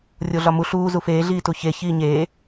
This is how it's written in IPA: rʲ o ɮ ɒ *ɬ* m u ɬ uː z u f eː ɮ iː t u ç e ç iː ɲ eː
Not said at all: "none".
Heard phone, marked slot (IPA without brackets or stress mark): none